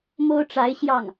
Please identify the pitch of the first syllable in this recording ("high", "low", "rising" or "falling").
high